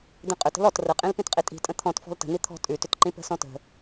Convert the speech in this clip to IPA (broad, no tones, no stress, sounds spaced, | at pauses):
d̪ ĩ qʼ ʏ t ə̤ l ɔ t r ə qʼ ĩ l p ĩ t qʼ i tʼ i̤ tʼ ə̃ t̪ʰ ɔ̃ t f ɔ̤ l t ə̤ n̪ i t̪ʰ ɔ̤ tʼ ʉ t ʏ t ǃ ĩ p ə̤ s ɔ̃ t ə̤